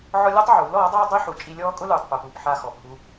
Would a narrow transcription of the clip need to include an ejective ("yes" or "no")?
yes